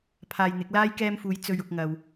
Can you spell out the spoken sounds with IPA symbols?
pʰaː˧jn̪ɪ˨˥k̚laː˥j kɛː˧mfuː˨˧j t͡sɵ˨ɥʊ˨k̚ŋɐ˨w

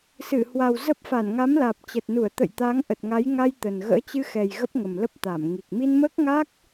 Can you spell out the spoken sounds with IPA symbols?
sɨ˧˩hwa˨˩w zə˦˥p̚ fa˧˩nŋa˨˦mlaː˨˩p̚ t͡ɕə˨˩t̚nu˧˩ə̯t̪ə̰˧˨jt̪a˨˦ŋ ʔə˨˩t̚ŋa˨˦jŋa˧j t̪ə˨˩nɣə̰ː˧˥ t͡ɕɨ˧xɛ˨˩j ɣə˦˥p̚ŋə˨˩m lə˦˥p̚t̪a˧˩m ŋi˨˩k̚ mi˧nməː˦˥k̚ŋa˦˥k̚

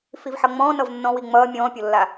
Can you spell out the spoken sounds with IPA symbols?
fivħʌŋ͡mɔ̃ː nʌvnːɔ̃wi ŋ͡mʌː mʲɔ̃ːpʲolːa

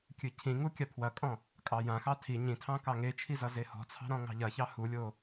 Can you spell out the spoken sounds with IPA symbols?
kʲɨcʰĩŋu kʲapʰwɐkʼɔ̃ | kʼɑjãxɑ tʰi ɲĩtʰɑ̃ kɑŋet͡ʃʰi zʌzehɔ̤t͡sʰɑ̤ ɾɔ̃ŋɑ̤ʎɐçɑ hulʲo

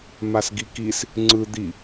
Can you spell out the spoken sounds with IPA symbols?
masɡikis | ŋ͡ǀɯ d̪i

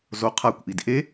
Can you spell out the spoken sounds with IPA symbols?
zoqʰakʷʔid ʔe

